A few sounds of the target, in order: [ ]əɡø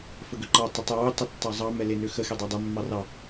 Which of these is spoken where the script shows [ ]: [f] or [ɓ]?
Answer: f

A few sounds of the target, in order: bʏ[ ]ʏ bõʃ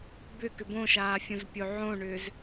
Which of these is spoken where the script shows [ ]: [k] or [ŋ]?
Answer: k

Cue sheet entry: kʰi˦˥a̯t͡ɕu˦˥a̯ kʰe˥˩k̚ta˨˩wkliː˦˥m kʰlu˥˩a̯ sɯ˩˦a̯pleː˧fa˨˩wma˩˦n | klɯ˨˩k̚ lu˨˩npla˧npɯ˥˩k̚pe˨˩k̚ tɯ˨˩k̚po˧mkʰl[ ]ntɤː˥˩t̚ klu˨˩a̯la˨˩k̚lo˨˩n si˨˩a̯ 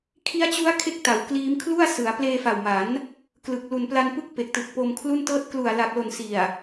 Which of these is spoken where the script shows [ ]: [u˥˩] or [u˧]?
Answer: u˥˩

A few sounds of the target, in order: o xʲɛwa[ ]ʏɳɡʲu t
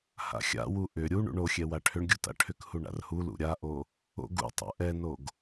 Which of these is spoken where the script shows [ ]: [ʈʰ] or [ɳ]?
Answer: ʈʰ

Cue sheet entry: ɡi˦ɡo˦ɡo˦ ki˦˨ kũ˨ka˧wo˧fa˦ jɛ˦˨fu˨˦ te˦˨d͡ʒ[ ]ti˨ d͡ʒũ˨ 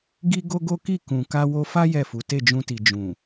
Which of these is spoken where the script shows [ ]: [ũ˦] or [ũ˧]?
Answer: ũ˧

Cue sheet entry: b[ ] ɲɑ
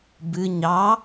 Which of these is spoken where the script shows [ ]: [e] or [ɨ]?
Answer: ɨ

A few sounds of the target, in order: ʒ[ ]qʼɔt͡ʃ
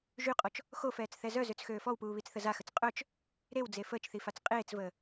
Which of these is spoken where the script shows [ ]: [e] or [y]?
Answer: y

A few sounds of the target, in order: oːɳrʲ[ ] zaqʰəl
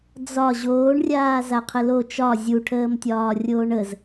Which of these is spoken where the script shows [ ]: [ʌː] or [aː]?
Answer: aː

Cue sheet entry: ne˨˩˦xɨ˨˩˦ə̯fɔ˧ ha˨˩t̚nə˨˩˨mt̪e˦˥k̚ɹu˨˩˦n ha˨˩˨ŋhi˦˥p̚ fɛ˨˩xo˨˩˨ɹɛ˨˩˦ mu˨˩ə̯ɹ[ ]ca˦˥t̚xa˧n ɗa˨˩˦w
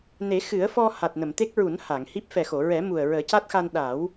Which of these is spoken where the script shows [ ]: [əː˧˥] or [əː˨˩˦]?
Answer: əː˨˩˦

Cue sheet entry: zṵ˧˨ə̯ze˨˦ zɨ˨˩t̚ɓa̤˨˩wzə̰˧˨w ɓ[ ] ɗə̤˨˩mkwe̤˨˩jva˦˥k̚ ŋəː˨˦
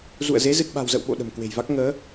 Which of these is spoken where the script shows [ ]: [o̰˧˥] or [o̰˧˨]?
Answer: o̰˧˨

